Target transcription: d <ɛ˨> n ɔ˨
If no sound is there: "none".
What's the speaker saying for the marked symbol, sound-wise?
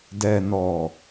ɛ˨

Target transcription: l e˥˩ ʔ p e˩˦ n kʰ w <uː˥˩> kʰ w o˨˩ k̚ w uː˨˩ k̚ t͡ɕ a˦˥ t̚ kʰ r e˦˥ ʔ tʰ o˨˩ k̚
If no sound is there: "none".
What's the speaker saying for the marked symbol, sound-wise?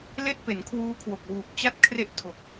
uː˦˥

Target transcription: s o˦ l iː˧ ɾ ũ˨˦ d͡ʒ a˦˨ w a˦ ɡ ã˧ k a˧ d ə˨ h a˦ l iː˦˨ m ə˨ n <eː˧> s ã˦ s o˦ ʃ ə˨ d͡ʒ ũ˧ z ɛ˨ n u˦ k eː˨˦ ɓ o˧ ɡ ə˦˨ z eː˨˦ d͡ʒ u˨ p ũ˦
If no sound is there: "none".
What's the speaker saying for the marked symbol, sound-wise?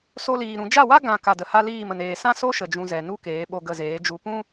eː˨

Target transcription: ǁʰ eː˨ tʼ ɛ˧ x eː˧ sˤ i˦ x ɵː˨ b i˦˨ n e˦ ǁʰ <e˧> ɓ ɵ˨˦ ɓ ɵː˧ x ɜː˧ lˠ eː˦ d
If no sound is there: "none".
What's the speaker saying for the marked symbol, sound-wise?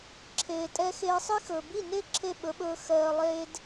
e˦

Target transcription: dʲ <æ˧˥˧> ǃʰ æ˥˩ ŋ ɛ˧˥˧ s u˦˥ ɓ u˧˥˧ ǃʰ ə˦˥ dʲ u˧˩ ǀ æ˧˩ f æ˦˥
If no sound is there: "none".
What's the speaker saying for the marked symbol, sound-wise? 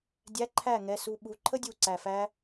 æ˧˥˧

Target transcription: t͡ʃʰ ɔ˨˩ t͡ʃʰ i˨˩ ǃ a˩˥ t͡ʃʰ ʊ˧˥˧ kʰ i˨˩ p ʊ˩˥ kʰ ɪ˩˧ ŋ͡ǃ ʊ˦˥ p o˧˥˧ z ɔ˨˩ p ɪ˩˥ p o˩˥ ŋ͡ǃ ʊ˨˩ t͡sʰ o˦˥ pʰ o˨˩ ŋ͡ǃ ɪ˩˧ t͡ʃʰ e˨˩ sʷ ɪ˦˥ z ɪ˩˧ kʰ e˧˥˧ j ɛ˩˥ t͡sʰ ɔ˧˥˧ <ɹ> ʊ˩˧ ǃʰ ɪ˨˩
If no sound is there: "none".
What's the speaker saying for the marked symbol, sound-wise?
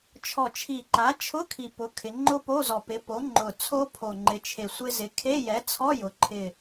j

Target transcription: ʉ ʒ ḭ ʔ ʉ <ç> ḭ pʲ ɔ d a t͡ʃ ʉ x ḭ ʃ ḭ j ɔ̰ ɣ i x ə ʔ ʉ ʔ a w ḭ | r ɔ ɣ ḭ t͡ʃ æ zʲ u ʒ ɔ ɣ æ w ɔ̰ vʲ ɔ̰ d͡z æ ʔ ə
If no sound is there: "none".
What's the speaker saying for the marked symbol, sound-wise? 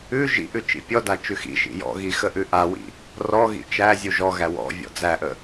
t͡ʃ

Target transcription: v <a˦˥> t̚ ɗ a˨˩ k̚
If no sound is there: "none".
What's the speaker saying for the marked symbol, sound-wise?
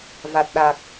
a˨˩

